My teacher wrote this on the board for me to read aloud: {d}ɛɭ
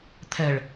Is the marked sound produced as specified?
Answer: no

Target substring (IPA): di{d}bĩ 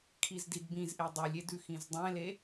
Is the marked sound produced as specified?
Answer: yes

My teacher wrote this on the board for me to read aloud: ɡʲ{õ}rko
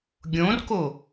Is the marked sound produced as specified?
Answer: yes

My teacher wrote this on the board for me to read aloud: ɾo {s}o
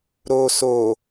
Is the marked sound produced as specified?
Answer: yes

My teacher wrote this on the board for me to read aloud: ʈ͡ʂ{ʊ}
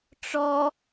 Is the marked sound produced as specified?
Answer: no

